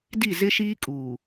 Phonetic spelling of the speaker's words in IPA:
d i˦˨ z ɪ˦ ʃ iː˦ kʼ uː˨

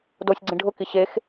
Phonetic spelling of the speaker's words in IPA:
d o sʲ ɡ͡ǀ ĩ ɖʱ ʊ k i ɕ e x

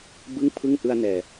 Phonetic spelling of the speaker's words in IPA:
b ɯ˥˩ ŋ pʰ ɯ˥˩ ŋ ʔ ɯ˧ a̯ n ɛː˨˩

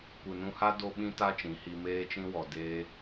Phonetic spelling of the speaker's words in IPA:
kʷ ɨ˨ n ũ˧ h a˦ d o˦ ɓ ĩ˦ t a˦ t͡ʃ ĩ˨˦ h i˧ m eː˧ t͡ʃ ĩ˧ w ɔ˨ d eː˧

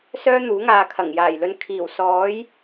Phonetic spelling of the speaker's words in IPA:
s œː˥ n̪ uː˨˥ ŋ aː˨ kʰ ɐ˨˩ ŋ j aː˨˩ j l ɵ˨˧ n kʰ iː˨˩ w s ɔː˨˥ j

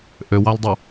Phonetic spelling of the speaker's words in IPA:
ʔ ø w ɑ l dˤ u

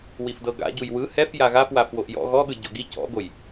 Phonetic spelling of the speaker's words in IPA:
w i f d ɤ ɡ a̰ ɟ u j w ɯ h ɛ f j a ɣ a f w a f w o ʔ j ɔ̰ ɣ ɔ ɠ ɯ ɟ ɔ̰ ɡ i c ɔ̰ ɡ o j

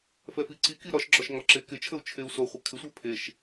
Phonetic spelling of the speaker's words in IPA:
f ɛ f i ǀ i k i ɾ ɒ ʃ ɡ͡ǁ ɒ ʃ ŋ ɒ ǁ e k ɪ t͡ʃʰ ə u̯ t͡ʃʰ e u̯ s o χʷ ə kʰ ɪ sʷ ɛ pʰ e ʃ

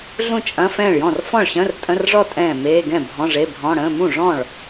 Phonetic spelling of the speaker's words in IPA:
ɮ ũ˥˩ t͡ʃʼ ɐ̃˧˥˧ f ɛ̃ː˥˩ ɭ j ɔ̃˥˩ r f ɔ̃˥˩ ɭ ɕ ə̃ː˧˥˧ r tʼ ə̃˧˥˧ r ʐ ɔ˥˩ tʼ ɛ̃ː˥˩ m eː˧˥˧ ɡ ɛ̃˥˩ bʱ ɔ̃˧˥˧ ʐ e˧˥˧ bʱ ɔ̃˧˥˧ ɽ ə̃ː˧˥˧ m ũ˥˩ ʐ ɔ̃˥˩ ɭ

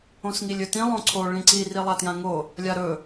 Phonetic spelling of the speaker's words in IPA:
õ s ŋ i lʲ ɵ t ĩ lˠ õ ǀʰ o ɭ ĩ ǀ i r i lˠ a t j ã ŋ o | lʲ a ɾ ɵ

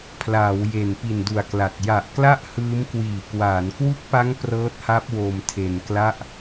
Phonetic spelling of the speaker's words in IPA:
pʰ l aː˩˦ w j e˨˩ n p i˨˩ n d u˨˩ a̯ k l a˨˩ t̚ j a˨˩ ʔ k l a˥˩ ʔ h ɯː˦˥ m k w iː˨˩ k w aː˩˦ n k w u˦˥ k̚ p a˦˥ ŋ p r ɤː˦˥ t̚ h a˦˥ p̚ w o˧ m tʰ e˧ n k l a˥˩ ʔ

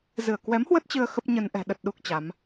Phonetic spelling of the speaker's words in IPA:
z ɨ˧˩ ə̯ k w ɛ˨˦ m h w ə˦˥ t̚ t͡ɕ ɨ˧ ə̯ x ə˦˥ p̚ ɲ ə˧ n ʔ ɛ̤˨˩ ɗ ə˨˩ t̚ ɗ u˦˥ k̚ t͡ɕ a˨˦ m

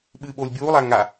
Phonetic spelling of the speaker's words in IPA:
ɓ ɨː ɓ oː lʲ bʲ uː lˠ aː ŋ a

